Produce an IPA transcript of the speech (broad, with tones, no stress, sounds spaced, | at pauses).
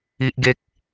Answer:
i˦ ʔ ɡ e˦ k̚